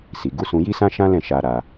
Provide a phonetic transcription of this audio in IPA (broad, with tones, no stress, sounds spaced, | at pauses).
s i˨ ɡ u˨˦ s ũ˧ j i˦ s ã˦ ʃ ã˦ l ɛ̃˦˨ ʃ a˧ ɾ a˧